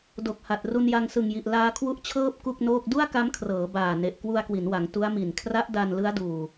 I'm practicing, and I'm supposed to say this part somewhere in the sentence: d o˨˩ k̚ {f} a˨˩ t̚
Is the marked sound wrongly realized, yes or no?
yes